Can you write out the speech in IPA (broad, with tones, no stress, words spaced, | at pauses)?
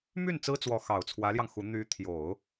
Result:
my˥˩n t͡sɹ̩˥t͡swɔ˧˥ xɑ˨˩ʊ̯t͡sʰwä˧˥ljɑ˧ŋ xu˧˥ n̪y˧˥t̪ʰjo˨˩˦ʊ̯